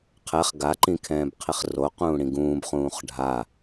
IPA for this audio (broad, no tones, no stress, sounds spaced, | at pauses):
qʰ ɛ χ ɡ a ǃ ĩ kʰ ɛ̃ː b qʰ i χ r o q ũː ɽ ĩ ɡ ũː b χ ũː χ ɖʱ a